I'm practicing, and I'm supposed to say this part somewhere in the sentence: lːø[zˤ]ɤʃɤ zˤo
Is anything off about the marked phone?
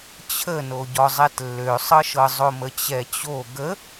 yes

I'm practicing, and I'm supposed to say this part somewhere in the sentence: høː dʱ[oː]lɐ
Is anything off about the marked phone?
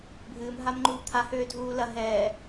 yes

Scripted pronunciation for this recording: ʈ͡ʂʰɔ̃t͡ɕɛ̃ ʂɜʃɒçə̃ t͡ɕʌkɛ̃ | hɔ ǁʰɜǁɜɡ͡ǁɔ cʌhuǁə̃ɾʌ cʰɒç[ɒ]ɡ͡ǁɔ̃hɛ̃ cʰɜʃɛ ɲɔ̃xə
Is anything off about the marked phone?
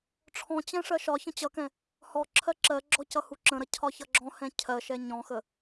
yes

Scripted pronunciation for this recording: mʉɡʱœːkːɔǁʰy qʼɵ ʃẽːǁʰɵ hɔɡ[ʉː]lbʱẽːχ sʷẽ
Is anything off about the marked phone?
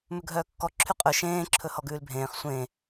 no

